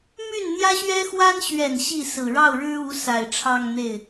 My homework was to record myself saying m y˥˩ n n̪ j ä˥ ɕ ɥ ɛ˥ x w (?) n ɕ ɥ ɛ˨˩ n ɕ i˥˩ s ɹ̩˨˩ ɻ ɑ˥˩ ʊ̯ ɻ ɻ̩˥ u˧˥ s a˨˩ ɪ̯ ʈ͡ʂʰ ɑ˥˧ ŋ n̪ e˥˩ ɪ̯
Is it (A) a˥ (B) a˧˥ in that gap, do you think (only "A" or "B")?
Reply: A